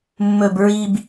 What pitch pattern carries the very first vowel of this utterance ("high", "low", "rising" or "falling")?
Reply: low